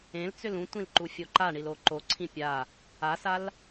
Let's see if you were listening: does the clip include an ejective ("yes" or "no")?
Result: no